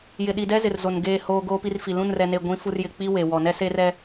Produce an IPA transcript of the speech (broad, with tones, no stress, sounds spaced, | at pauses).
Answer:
j ɪ˨ ɗ i˨ d ɛ˦ z ɪ˨ r z o˨ n ɡ eː˦˨ h oː˦ ɡ oː˦ p i˦ r f i˨ l ũ˦˨ n r ɛ˨ n e˨ ɡʷ ĩ˨˦ f u˦ r j ɪ˨ k͡p i˦ w e˨ w ɔ˨ n ɛ˦ s e˦ r ɛ˦